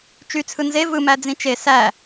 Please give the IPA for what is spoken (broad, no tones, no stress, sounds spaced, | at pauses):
t͡ʃ y t͡sʰ ɯ n z e v ɯ m æ d͡z ĩ t͡ʃ e s æ